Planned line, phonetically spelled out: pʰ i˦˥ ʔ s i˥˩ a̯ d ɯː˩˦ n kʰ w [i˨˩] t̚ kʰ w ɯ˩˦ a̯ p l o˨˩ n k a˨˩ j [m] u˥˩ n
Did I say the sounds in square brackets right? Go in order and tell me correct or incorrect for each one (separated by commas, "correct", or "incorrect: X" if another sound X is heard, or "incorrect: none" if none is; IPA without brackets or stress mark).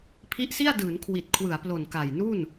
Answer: correct, incorrect: n